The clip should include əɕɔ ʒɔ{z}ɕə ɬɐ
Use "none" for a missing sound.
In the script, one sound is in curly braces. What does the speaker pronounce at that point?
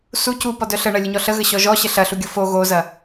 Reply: none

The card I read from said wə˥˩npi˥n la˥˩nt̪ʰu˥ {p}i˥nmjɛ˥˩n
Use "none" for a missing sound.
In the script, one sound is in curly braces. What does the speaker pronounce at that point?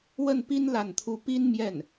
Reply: p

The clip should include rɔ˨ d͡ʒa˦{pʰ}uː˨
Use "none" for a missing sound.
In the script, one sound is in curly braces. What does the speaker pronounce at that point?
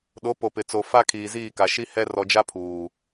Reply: pʰ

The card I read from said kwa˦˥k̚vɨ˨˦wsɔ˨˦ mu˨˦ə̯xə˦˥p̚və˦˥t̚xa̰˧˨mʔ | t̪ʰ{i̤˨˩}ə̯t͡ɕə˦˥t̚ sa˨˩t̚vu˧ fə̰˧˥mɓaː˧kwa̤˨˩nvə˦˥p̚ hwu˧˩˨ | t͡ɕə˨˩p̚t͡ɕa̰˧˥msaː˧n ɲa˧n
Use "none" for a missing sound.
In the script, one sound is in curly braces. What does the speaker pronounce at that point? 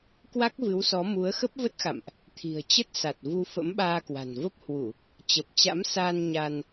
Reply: i̤˨˩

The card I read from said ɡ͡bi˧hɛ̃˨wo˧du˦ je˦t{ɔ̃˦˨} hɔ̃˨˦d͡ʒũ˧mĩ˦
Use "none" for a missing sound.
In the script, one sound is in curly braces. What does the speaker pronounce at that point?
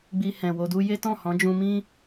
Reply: ɔ̃˦˨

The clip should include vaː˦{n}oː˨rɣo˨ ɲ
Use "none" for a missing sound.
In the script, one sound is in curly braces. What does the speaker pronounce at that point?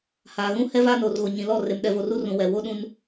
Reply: n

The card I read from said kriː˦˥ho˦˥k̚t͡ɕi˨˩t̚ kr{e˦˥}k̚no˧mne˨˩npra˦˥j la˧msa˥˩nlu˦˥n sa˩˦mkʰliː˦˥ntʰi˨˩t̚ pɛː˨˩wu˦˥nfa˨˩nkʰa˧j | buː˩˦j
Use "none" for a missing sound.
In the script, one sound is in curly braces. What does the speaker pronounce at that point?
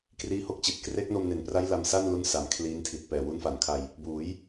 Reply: e˦˥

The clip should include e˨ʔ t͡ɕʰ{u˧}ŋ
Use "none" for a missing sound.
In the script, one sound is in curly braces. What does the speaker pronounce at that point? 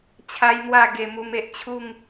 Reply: u˥˧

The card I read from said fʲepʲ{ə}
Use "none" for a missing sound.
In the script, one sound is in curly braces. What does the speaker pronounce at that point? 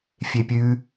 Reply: ʉ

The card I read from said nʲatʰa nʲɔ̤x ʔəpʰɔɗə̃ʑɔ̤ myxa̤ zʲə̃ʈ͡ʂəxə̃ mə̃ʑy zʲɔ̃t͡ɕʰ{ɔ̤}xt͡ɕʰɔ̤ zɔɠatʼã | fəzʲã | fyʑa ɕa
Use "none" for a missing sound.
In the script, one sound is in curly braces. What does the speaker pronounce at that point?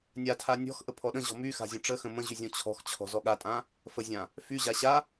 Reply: ɔ̤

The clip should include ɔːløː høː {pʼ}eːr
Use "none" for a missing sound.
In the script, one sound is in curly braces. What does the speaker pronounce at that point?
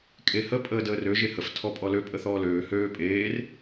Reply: pʼ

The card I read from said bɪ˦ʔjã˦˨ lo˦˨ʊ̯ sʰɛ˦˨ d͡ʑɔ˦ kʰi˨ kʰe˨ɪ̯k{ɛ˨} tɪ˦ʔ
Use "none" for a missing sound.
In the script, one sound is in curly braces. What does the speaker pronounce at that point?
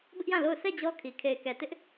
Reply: ɛ˨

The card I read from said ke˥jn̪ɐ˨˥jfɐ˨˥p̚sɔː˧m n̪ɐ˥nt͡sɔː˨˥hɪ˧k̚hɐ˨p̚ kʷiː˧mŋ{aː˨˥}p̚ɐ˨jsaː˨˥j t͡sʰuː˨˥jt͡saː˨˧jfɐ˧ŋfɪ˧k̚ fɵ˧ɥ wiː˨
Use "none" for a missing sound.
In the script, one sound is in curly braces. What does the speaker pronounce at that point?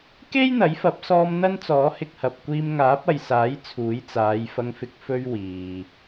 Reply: aː˨˥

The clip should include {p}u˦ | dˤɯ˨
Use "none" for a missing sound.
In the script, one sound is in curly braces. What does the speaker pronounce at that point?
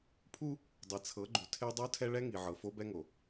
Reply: pʰ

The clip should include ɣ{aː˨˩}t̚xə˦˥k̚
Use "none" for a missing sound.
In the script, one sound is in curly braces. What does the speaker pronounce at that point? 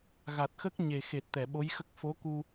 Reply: a˨˩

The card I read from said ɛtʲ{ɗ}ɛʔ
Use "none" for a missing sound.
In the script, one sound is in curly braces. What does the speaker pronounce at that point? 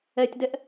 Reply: d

